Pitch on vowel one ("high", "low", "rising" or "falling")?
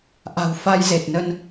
low